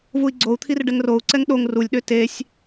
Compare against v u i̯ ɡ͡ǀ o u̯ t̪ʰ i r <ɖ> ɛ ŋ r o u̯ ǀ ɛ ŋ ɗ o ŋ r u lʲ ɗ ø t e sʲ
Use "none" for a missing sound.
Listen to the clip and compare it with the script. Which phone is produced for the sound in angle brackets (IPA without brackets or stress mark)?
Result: ɖ